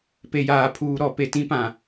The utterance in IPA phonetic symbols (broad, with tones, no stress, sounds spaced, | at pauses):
p e˨ j aː˨ pʰ uː˨ ɾ ɔ˨ p e˨ t ĩ˦ p ã˨